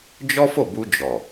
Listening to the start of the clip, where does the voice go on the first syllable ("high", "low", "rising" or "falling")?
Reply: high